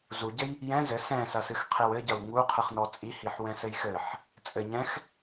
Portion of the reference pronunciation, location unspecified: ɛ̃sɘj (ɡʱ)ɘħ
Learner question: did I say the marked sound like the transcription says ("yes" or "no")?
no